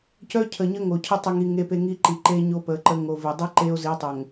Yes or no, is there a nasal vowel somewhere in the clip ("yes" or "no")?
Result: no